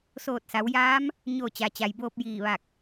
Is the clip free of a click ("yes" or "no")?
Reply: yes